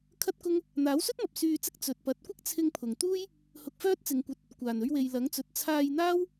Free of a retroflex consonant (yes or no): yes